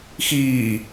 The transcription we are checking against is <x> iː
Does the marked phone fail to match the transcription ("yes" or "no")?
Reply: no